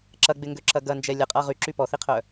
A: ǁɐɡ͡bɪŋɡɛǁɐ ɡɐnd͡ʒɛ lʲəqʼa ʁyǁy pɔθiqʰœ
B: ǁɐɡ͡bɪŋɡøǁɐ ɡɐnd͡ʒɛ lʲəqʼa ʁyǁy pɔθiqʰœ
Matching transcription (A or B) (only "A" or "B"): B